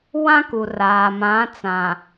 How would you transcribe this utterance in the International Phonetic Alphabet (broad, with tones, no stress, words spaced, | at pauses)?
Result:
wã˦ku˨ raː˨mã˨˦t͡sã˨